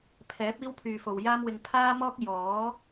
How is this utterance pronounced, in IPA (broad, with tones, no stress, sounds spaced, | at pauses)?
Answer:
pʰ ɛː˨˥ p̚ iː˥ w pʰ yː˨ f o˨ w j aː˥ m w ɪ˧ ŋ pʰ aː˥ m ɔː˥ k̚ j ɔː˨˥